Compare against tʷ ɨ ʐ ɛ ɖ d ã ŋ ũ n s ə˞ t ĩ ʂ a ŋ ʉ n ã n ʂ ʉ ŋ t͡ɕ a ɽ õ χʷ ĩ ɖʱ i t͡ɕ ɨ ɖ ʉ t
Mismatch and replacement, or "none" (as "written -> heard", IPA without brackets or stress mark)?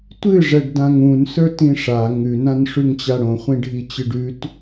none